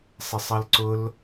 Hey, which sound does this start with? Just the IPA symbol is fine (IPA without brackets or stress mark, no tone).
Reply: sˤ